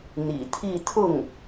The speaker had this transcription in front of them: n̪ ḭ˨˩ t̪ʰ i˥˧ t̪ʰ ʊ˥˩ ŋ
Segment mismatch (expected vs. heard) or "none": none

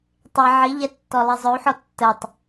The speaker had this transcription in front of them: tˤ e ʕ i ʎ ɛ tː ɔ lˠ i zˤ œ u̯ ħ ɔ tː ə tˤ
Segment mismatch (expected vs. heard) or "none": none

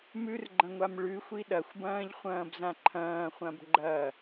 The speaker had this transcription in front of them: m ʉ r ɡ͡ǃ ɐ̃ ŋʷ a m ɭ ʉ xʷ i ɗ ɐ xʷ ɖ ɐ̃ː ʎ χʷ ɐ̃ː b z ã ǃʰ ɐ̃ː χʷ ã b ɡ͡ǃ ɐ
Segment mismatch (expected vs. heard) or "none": ɖ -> b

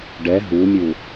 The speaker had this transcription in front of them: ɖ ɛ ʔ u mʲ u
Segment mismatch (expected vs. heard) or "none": ʔ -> ɦ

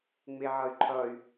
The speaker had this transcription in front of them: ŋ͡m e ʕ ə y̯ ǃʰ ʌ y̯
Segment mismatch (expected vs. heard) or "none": ə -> ʌ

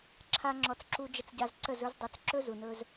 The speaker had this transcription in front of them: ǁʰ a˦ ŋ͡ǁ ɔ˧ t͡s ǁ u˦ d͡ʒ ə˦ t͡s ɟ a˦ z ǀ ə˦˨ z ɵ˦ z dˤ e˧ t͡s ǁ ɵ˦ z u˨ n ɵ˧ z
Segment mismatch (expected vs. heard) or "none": none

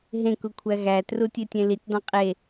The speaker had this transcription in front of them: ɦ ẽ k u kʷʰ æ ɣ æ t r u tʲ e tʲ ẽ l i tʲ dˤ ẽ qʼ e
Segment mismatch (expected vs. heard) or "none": none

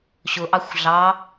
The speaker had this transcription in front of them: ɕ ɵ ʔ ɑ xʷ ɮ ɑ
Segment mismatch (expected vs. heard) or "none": ɵ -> ʊ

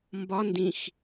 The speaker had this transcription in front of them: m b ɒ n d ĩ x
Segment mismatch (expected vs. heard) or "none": none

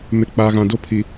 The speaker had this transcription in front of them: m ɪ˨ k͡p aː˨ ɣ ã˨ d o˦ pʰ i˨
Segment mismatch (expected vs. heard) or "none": none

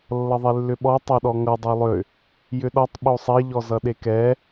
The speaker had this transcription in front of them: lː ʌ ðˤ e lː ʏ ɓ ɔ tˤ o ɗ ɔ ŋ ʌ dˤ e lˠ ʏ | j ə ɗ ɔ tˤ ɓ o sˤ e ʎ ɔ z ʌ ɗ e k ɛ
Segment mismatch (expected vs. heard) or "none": ə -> ʏ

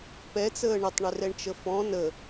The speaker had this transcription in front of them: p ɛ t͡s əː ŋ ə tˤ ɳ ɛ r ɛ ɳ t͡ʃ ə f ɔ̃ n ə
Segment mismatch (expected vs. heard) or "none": ŋ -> ɳ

